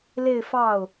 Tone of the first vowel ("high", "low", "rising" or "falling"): falling